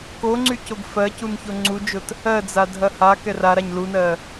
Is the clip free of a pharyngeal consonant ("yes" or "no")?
yes